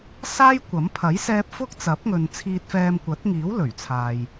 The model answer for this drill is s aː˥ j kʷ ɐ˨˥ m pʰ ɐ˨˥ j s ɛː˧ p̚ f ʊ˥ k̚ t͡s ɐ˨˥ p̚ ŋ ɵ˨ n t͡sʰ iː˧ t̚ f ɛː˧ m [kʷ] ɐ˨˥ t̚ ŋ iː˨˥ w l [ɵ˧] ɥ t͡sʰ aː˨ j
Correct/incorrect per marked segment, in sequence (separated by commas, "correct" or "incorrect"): correct, incorrect